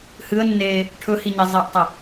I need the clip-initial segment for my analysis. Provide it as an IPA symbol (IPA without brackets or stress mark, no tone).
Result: h